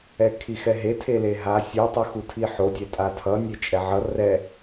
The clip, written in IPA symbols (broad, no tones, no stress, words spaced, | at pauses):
ɛkʰixɛɦe tʰeleɦa sʲutˤɯxu tʰiħodʲɛ tʼatʰʌ nʲet͡ʃʼɛʕʌ rɛ